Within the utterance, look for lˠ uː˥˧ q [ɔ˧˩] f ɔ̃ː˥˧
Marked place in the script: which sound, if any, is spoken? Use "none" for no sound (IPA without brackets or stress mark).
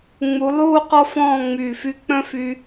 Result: ɔ˥